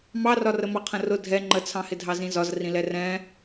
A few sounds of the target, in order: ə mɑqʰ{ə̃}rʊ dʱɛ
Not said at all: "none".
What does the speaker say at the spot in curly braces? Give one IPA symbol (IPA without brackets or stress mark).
ə̃